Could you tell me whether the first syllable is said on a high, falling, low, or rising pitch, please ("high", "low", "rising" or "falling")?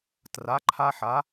rising